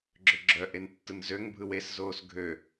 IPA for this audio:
ɡ͡ǁ ø ɡ͡ǁ œ ʔ e n tː ɯ n z ø ŋ bʱ ɯ w e s z oː s ɡʱ ø

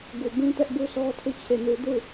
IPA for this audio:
ɡ u˨ b ũ˦ t ɛ˦ ʔ b u˦ sʰ ɔ˦ tʰ u˦˨ t͡ɕʰ e˦˨ n u˦ d u˦˨

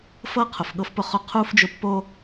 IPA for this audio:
f ɤ˥ qʰ ʊ˨ f ɠ ɤ˥ f p ʊ˦ χ ʊ˦ qʰ u˥ f d͡ʒ ʊ˦ pː o˥

